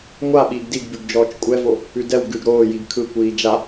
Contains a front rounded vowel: no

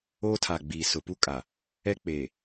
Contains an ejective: yes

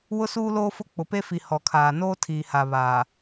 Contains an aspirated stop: yes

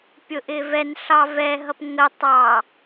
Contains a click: no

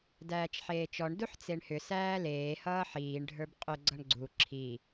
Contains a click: yes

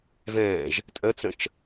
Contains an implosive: no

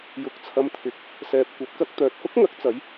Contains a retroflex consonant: no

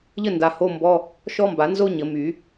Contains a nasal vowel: no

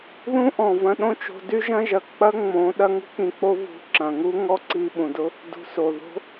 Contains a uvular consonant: no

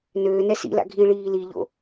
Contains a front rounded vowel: yes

